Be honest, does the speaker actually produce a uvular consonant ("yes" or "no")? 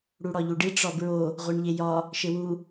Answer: yes